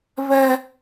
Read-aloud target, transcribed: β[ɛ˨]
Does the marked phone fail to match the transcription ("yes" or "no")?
yes